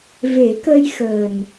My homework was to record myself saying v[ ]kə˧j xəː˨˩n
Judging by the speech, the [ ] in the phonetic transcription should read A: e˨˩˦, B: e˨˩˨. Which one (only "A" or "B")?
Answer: A